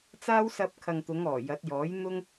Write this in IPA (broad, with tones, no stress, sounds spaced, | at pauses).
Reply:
t͡s aː˥ w s ɐ˧ p̚ kʰ ɐ˨ ŋ t̪ ʊ˨˧ ŋ ɔː˨˩ j ɐ˨˥ t̚ j ɔː˨˥ j n̪ ʊ˥ ŋ